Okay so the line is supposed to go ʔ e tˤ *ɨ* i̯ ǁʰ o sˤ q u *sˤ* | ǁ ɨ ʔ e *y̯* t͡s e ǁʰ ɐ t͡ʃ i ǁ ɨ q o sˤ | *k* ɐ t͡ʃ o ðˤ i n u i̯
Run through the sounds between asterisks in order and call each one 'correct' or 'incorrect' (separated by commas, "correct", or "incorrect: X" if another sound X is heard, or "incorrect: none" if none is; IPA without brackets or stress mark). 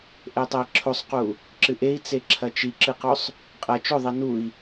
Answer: incorrect: ɛ, incorrect: none, incorrect: i̯, incorrect: qʼ